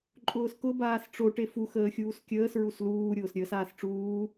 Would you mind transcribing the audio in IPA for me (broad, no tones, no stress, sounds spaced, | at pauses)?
ǃʼ ʊː s k ʊ b aː s ʈ͡ʂ o ʈ e f u x əː xʲ uː s kʲ əː s ɹ u s l uː ɾʲ ʊː s ɾʲ əː s aː s ʈ͡ʂ uː